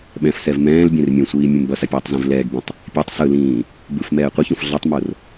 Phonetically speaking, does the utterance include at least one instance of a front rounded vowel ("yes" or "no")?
no